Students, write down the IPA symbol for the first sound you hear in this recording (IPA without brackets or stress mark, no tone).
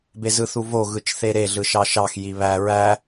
b